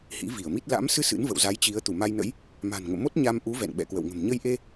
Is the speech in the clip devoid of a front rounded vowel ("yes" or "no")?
yes